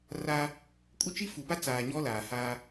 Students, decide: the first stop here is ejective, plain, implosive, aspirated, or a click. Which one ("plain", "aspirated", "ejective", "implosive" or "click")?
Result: ejective